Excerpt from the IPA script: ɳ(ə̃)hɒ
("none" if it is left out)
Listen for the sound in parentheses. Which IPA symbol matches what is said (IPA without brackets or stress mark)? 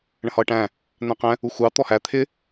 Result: ə̃